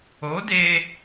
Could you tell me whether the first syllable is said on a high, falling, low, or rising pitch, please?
rising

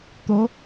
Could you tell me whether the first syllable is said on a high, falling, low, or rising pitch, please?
rising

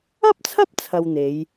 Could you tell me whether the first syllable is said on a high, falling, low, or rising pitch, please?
high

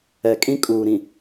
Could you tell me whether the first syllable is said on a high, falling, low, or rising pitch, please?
low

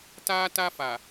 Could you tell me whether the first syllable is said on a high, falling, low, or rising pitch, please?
high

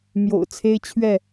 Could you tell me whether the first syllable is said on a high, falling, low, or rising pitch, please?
low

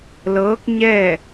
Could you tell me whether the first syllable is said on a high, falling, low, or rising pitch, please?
rising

